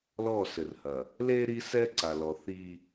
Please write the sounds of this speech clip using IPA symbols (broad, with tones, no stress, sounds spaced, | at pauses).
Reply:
l ɔ˦˨ s ɘ˨ r h ɐ˨ | l e˦ ɾ i˦ s ɛ˦ ǀ a˨ l ɔ˨ θ i˦